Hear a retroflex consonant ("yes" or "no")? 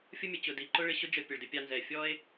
yes